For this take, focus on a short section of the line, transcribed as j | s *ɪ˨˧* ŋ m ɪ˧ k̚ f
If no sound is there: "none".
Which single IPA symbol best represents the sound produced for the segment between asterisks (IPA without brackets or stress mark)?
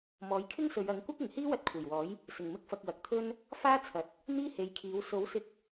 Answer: ɪ˨˩